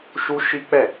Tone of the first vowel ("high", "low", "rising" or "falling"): high